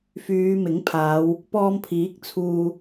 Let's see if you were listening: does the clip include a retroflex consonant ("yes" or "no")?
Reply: no